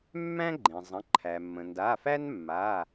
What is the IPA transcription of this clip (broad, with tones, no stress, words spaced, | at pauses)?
mːæ̃˥ɡ͡ǃẽ˩ zˤə̃˩˧˩ǃʰæ˩mːə̃˩ ndaː˩˧˩fæ˥n mːa˩˧˩